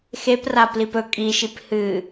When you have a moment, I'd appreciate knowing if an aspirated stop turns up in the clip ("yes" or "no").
no